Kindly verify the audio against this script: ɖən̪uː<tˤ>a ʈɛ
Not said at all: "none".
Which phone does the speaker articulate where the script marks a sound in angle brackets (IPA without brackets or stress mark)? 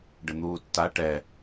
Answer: tː